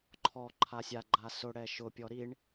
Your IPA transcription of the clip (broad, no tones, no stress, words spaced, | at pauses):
ǃʰɔ ǃʰasʲa ɡ͡ǃasʊ ɽɛʃʊ pʲɔɾiɳ